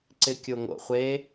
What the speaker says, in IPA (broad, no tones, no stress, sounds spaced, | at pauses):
ǀ ɪ kʲ o ŋ o̰ χʷ e